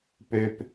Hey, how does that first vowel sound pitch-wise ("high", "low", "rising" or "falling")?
low